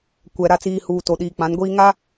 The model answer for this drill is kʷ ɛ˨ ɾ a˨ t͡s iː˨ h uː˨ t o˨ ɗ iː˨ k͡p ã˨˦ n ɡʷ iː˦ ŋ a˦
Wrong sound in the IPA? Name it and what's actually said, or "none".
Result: none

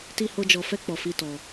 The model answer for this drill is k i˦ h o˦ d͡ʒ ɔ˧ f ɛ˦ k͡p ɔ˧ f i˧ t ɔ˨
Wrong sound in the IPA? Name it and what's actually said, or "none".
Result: k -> t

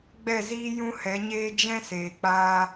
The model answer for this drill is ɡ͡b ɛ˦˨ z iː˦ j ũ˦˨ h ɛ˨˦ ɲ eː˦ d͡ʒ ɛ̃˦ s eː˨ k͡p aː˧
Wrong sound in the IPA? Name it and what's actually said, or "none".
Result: ũ˦˨ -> ũ˦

